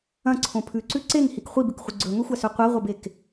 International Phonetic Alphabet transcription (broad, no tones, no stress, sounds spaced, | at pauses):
ɐ̃ ǀʰ õ pʰ ʉ ǀ ʉ ǀ e ŋ h i k χʷ i b ʉ k χʷ ɨ ɡ͡ǀ ɵ ŋ ɵ xʷ a s ɵ qʷ ɐ ʁʷ ɐ b e k